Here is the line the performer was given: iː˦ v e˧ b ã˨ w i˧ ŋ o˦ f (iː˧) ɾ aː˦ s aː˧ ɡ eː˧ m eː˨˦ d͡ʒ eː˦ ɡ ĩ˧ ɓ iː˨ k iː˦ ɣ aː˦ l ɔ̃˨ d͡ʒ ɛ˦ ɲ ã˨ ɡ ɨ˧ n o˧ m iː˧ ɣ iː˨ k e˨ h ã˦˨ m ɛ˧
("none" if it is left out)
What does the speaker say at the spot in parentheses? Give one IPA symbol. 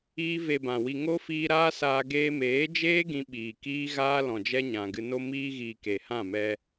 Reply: iː˧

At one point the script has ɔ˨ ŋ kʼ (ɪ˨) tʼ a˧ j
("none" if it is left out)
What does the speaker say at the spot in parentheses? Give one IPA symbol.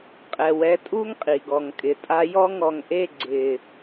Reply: ɪ˨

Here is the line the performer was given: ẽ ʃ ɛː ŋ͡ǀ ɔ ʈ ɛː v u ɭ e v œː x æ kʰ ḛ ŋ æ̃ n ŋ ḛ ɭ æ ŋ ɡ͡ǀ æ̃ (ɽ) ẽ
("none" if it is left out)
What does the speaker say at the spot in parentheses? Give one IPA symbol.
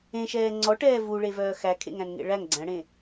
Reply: ɽ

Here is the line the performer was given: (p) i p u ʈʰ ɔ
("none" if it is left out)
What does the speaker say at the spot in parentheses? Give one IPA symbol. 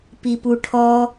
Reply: p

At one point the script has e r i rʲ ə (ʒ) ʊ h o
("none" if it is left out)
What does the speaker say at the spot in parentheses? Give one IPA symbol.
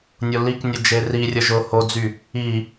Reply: ʒ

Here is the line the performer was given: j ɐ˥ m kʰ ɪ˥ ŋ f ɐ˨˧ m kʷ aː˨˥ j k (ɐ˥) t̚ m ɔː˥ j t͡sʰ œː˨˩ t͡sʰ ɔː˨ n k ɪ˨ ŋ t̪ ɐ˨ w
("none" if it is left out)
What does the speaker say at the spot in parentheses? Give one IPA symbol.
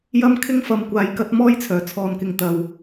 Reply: ɐ˥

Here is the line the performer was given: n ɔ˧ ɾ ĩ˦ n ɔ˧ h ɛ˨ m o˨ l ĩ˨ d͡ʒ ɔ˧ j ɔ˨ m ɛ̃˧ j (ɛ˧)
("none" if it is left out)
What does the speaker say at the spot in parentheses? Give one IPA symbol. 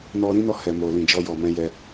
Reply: ɛ˧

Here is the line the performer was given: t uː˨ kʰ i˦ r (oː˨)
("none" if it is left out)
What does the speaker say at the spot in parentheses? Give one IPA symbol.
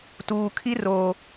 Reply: oː˨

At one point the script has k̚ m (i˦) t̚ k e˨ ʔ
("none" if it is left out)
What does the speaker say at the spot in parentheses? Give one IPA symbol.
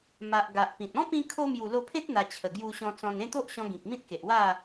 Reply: ĩ˦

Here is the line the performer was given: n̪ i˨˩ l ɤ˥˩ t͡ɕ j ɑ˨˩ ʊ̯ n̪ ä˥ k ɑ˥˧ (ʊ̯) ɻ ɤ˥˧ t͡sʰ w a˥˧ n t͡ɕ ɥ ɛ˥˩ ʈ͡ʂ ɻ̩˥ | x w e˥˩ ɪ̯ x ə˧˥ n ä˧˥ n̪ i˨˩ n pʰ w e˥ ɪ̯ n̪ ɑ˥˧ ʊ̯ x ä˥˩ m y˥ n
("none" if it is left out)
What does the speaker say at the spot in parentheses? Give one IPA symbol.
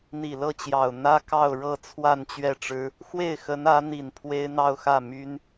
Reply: ʊ̯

